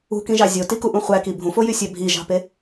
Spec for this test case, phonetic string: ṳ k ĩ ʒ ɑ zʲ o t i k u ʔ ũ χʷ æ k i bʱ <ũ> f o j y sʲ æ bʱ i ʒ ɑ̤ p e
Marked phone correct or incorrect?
correct